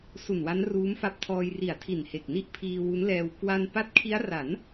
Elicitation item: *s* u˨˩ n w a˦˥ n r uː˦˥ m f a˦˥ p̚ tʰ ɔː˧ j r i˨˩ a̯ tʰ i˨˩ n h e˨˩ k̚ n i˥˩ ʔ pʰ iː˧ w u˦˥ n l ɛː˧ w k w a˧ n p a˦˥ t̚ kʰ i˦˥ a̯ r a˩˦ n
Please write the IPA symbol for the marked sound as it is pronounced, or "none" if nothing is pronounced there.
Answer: s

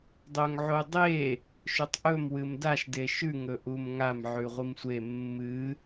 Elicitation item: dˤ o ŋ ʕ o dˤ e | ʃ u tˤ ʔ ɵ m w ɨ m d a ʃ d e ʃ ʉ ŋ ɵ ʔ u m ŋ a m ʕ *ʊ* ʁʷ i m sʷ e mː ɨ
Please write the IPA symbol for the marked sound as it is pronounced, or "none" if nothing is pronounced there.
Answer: ʉ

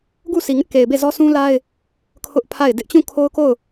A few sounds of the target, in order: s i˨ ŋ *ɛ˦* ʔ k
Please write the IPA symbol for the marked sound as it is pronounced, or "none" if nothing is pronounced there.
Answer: ɪ˦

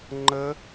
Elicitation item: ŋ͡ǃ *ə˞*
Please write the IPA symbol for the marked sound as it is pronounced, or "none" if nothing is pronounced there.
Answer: ə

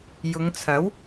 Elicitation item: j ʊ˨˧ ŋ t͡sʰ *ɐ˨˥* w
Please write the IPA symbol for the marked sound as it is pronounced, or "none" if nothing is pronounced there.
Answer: ɐ˨˥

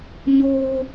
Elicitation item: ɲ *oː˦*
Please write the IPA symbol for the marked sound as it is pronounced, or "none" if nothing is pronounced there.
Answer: oː˦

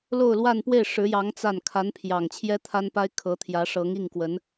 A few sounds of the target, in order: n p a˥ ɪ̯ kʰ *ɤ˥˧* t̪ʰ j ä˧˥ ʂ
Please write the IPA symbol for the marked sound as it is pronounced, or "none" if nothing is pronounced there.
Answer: ɤ˧˥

